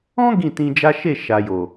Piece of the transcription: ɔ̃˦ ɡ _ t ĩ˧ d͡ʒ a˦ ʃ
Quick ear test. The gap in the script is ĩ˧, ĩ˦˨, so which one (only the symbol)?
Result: ĩ˦˨